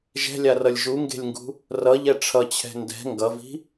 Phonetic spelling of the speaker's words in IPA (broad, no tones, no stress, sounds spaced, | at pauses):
ʒ ɛ̤ lʲ a r ʌ lʲ ʒ u ŋ ɡ e̤ lʲ ŋ ɡ ṳ | r ʌ ʎ ɛ ʈ͡ʂʰ ʌ t͡ɕʰ ɛ̤ n d ɛ̤ ŋ ɡ ʌ v i̤